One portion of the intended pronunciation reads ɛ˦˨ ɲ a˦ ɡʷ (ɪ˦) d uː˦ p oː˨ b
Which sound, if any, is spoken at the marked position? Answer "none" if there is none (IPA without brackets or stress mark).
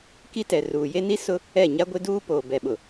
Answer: ɪ˦